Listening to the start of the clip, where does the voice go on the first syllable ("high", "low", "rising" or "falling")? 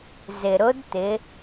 low